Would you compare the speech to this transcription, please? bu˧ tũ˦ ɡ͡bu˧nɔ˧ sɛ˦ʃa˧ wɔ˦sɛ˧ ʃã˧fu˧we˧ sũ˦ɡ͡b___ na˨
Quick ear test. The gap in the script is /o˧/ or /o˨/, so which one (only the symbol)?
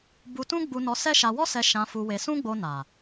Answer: o˧